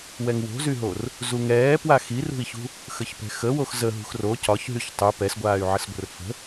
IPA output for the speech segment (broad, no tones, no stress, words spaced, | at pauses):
wɛŋwo̤zyɦor | zuŋɛː pwaxirṳi̯çṳ | xəçpɛ̤xə woxzə ɦṳxro cɒçɦyç tˤy pɛsɡʷaːy̯ʕəsɡʷə̤r fə̤